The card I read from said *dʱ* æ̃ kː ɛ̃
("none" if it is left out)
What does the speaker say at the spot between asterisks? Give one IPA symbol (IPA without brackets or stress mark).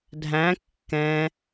dʱ